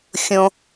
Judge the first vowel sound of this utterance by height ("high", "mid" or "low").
mid